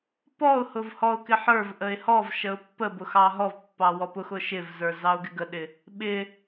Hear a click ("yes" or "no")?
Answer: no